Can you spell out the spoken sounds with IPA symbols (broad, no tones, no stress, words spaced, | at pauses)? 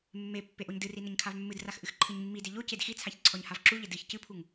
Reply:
mːe pːeʔoɲdɨri nɘɲkʰavmːɨdrax ʔɨxǃʰɨɲmːide ʎo cedxit͡sʰaç ǀʰɔɲhavǁuʎɘ dɨç cɨpʰuŋ